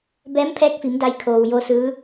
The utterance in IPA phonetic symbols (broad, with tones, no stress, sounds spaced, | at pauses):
b ɛː˧˥ m pʰ ɛː˧˥ k̚ f i˩˧ m d a˧ j kʰ oː˩ w j o˧ s ɯː˧˥